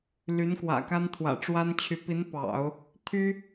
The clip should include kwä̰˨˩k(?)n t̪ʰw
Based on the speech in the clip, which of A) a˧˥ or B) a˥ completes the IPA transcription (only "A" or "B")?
B